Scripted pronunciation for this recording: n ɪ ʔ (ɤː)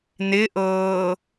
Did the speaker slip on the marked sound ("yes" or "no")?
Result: no